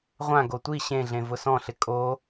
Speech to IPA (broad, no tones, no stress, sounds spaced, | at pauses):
ʁʷ ã ɡ o tʷ i ɕ ẽ ɮ ẽ v ʊ s ɔ̃ ɬ ɪ kʼ o